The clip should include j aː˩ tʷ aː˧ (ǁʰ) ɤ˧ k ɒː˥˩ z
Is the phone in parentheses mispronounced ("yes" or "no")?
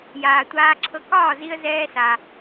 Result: no